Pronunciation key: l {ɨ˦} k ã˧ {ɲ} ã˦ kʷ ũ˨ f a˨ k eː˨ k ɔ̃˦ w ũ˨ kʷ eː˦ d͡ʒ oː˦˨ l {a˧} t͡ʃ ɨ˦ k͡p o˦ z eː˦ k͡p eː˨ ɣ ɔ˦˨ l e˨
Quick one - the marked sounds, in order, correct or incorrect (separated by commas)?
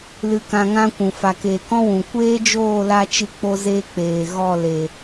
incorrect, incorrect, correct